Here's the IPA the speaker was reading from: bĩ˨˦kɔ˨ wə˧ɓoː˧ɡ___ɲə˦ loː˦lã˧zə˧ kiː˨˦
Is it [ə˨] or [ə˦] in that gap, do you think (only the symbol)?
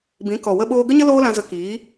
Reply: ə˦